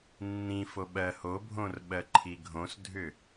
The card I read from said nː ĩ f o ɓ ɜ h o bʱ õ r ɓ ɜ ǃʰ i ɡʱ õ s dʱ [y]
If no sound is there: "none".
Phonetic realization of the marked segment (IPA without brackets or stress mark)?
ʏ